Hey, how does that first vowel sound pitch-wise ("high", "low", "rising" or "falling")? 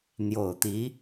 low